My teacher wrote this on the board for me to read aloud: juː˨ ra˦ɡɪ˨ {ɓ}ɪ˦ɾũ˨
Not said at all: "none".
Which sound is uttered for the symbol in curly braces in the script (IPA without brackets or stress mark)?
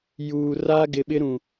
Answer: ɓ